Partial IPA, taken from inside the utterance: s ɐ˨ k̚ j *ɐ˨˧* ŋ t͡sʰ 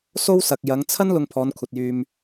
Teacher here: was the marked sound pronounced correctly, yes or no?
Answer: yes